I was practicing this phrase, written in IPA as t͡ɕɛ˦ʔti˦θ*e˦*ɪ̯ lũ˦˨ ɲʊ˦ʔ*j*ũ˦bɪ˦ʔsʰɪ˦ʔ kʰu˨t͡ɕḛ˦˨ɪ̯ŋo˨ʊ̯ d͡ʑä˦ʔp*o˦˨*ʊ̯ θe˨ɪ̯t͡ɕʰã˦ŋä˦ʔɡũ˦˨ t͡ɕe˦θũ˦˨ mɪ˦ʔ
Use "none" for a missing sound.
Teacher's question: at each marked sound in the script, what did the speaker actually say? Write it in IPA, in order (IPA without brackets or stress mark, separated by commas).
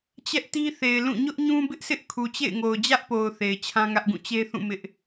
e˨, ɲ, o˨